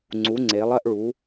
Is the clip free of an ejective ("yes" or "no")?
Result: yes